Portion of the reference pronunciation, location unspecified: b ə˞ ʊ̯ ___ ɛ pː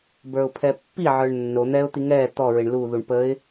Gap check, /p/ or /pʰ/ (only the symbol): pʰ